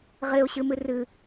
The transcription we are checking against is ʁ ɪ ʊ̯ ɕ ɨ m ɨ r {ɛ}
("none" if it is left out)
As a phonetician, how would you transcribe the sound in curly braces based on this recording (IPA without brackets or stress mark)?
ɨ